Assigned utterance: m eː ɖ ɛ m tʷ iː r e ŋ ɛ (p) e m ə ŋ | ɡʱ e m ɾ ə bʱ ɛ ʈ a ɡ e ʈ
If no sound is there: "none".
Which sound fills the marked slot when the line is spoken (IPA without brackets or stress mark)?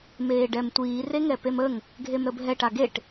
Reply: p